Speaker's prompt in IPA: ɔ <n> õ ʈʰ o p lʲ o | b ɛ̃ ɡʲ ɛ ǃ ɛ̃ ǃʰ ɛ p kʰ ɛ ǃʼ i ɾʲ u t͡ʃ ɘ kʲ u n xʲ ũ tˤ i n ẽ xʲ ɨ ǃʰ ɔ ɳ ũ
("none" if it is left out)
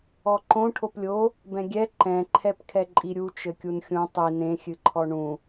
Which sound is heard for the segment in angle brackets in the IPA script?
ǃ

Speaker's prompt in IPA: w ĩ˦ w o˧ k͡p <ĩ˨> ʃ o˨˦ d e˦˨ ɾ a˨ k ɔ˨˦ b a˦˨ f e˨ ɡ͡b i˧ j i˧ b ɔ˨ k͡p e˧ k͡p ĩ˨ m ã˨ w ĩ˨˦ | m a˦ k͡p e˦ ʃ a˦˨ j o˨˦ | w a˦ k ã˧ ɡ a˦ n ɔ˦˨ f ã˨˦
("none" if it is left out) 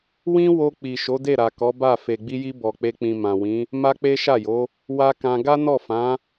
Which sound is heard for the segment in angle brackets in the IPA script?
i˨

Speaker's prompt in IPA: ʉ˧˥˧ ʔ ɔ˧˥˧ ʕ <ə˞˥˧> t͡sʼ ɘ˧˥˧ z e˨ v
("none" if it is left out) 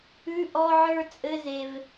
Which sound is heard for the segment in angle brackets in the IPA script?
ə˞˥˧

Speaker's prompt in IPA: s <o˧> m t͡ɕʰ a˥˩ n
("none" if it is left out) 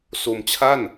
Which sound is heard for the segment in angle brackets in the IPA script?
o˧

